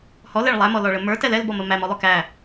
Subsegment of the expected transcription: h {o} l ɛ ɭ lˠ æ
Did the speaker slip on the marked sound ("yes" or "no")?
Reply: yes